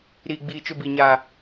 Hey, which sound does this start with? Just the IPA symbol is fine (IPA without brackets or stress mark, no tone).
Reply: ɾ